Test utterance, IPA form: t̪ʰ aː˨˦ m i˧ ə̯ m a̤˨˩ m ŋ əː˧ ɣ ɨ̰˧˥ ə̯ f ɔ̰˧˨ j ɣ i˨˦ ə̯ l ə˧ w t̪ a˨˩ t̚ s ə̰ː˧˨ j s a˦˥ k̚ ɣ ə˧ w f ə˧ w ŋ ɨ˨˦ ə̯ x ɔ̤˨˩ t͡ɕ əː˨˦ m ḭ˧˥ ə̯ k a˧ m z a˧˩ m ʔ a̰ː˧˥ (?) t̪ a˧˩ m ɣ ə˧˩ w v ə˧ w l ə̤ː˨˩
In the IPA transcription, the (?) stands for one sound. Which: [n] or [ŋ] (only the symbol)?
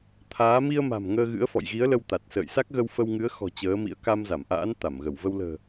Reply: n